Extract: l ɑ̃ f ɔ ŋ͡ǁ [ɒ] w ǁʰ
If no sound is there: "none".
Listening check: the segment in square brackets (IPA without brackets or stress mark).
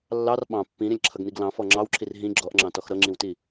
ɑ